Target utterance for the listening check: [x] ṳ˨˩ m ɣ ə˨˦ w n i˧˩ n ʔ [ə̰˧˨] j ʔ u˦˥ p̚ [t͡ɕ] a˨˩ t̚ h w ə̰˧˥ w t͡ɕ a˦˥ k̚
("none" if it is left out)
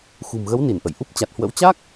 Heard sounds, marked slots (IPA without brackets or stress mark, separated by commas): x, ə̰˧˨, t͡ɕ